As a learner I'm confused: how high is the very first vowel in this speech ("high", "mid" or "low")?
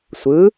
high